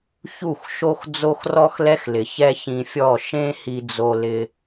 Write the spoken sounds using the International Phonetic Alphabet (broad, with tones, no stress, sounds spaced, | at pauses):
ç u˦˨ x ʃ o˦ x d͡z o˦ x r ɔ˦ x l ɛ˦ x l ɪ˨ ç ɛ˦ ç ĩ˧ fʲ ɔ˦˨ ʃ ẽ˦ h i˧ d͡z o˧ l ɪ˧